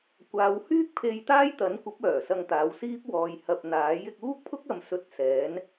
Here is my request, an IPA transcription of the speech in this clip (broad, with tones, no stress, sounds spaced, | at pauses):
kʷ aː˨˧ w h yː˥ k̚ pʰ e˧ j t̪ aː˥ j t̪ ɐ˨˥ n kʷ ɐ˨˥ p̚ œː˨˩ s ɐ˧ ŋ t̪ aː˨˧ w s iː˥ p̚ w ɔː˨ j h ɐ˨ p̚ n̪ aː˨˥ j ɪ˧ k̚ uː˥ k̚ pʰ ʊ˥ k̚ ɐ˨˧ m s ɵ˧ t̚ s ɛː˨˥ n